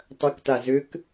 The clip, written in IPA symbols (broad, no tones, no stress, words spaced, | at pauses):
tˤɐkta zʏk